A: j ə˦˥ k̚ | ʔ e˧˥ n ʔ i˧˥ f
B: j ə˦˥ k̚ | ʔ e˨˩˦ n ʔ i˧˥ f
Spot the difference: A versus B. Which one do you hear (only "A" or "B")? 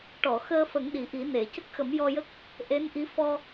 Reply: A